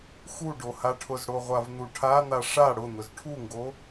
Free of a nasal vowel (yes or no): yes